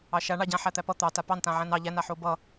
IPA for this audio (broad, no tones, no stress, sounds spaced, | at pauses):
ɑ ʃ a ɳ ɑ ɟ ã ħ æ t̪ æ p ʌ t̪ ɑ t a p ɑ n t ã ʕ æ̃ n ɑ ʎ æ n a ħ o b ʌ